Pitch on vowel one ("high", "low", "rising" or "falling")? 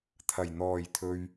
low